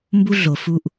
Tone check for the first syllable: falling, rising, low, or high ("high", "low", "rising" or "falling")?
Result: high